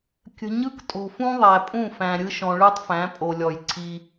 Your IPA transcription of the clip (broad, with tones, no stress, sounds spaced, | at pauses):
kʲ ə̤˨ ɲ ɯ˦ k tʼ o̤˨ f ũ˦ ðˤ æ˨ pʼ ũ˦˨ f æ̃˨ ɾʲ ɯ˦ ʃ ɔ̃˨ ɭ ɯ˦ tˤ f æ̃˨˦ pʼ o˨ lʲ ɔ˨ j ǀʰ i˦